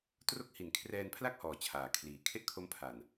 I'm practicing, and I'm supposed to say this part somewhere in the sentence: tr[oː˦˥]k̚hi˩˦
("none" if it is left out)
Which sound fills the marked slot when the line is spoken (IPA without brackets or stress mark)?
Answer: o˦˥